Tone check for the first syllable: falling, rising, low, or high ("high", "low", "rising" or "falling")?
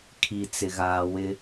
low